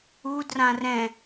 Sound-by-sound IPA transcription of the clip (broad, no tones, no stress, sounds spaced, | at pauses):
u d r ã r ɛ̃